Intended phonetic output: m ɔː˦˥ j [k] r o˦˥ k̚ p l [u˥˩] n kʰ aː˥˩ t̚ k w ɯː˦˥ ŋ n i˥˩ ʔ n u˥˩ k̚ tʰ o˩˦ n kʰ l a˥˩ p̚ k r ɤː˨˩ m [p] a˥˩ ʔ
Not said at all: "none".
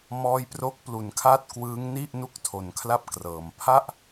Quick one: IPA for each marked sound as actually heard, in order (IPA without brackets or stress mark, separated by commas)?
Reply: p, u˩˦, pʰ